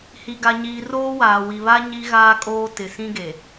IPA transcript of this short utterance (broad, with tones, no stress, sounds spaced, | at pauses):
h i˨ ɡ a˨ ɲ iː˨ r oː˦ w aː˨ w i˨ β a˦ ɲ i˦ ɣ aː˦ kʼ oː˦ t ɪ˨ s ĩ˦ ɡ e˨